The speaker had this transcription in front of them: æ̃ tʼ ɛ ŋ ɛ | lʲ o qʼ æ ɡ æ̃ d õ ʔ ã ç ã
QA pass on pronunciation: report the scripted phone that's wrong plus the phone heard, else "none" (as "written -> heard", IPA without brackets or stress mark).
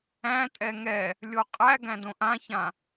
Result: none